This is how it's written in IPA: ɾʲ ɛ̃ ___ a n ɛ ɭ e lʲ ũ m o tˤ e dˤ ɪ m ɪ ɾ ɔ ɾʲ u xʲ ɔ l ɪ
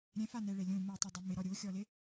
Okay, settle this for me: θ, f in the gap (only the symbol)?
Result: f